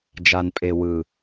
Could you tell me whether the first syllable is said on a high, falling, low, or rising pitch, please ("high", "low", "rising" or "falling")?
low